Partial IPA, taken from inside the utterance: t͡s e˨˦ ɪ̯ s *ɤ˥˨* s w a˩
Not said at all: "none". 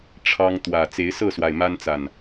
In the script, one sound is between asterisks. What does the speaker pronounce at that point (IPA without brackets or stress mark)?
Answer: ɤ˥˨